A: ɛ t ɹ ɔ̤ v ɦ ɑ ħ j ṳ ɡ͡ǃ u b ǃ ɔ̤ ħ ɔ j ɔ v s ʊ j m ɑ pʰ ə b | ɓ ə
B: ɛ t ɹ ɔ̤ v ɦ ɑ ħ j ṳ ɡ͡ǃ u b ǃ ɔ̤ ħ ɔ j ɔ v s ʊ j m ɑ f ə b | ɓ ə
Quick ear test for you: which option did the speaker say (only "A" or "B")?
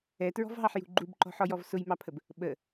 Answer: A